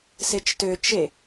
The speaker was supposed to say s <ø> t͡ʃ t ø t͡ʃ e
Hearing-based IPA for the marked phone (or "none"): e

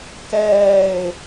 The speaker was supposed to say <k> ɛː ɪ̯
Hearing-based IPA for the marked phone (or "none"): k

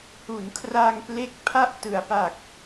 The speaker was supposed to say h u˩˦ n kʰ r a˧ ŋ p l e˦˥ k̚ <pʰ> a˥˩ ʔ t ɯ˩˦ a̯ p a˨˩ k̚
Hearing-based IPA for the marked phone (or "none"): pʰ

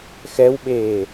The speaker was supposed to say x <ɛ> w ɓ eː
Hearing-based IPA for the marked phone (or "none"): ɛ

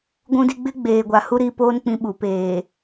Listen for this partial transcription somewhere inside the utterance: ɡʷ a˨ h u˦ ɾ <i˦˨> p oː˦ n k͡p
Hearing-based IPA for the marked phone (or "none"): i˦˨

